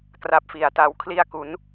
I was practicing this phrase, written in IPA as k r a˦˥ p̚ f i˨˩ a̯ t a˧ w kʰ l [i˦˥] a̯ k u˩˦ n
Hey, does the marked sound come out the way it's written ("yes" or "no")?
no